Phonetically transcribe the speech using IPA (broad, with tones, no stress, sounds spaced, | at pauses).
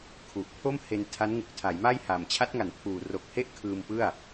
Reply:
kʰ u˨˩ ʔ pʰ o˥˩ m h e˧ n tʰ a˦˥ n ŋ u˨˩ k̚ tʰ a˩˦ j m a˥˩ j h a˨˩ m t͡ɕʰ a˦˥ t̚ ŋ a˩˦ n pʰ uː˨˩ r o˨˩ k̚ h e˥˩ ʔ kʰ ɯː˧ m p ɯ˥˩ a̯